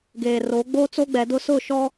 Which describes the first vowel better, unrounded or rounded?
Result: unrounded